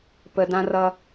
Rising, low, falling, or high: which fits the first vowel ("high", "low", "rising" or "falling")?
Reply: high